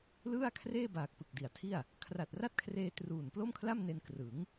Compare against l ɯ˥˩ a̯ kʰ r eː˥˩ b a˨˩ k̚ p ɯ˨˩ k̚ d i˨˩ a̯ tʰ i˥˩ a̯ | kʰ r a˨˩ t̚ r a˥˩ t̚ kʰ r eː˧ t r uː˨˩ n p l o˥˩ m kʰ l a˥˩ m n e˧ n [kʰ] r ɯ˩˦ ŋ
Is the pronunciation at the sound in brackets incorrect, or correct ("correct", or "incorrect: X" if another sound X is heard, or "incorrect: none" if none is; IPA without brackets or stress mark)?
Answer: incorrect: k